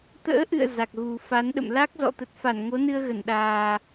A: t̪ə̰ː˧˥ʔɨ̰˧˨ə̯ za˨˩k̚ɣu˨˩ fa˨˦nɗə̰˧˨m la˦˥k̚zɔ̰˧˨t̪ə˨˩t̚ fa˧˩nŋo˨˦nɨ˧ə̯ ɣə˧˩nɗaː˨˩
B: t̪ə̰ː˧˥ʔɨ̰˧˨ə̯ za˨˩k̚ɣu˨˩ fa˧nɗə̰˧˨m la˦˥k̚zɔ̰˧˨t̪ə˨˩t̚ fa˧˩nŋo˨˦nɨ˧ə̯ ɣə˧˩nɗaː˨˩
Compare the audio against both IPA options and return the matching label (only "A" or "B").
A